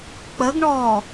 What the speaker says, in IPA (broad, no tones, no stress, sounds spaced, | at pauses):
k͡p ə ɡ ɳ ɔː